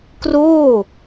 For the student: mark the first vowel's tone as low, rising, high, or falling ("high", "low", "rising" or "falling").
falling